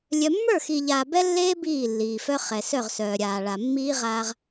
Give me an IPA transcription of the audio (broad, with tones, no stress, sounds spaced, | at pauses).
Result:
lʲ œ˨ mː ə˞˦˨ x iː˨ ʎ aː˨ b ɛ˦ lː eː˦ b iː˦˨ lː iː˨ f œ˦ χ ɛ˨ s œ˦˨ ʁ s œː˨ ɾʲ aː˨ ɭ a˨ mː iː˦ ʁ aː˦ ʁ